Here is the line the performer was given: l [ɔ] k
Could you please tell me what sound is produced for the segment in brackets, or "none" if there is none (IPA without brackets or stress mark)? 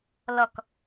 ɔ